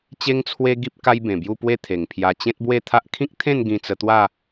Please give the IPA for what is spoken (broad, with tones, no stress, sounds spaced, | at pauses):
t͡ɕ e˦ ŋ t͡sʰ w e˦ ɡ i˦ p̚ k a˦ j b ẽ˨˩ b j u˥˧ p w e˦ t̪ʰ e˨˩ ŋ pʰ j a˧ t͡ɕ ẽ˦ t̚ b w e˥˧ t̪ʰ a˦ ʔ kʰ ĩ˦ k̚ t̪ʰ ẽ˥˧ n ɡ ĩ˧ t͡s ə˧ t̪ w a˥˧